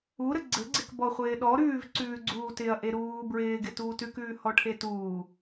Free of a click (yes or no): no